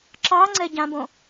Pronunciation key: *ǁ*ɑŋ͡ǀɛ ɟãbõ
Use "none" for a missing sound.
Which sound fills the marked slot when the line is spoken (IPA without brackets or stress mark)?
ǁ